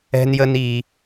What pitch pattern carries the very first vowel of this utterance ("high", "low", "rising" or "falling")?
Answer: high